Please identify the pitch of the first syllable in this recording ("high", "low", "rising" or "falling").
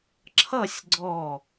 falling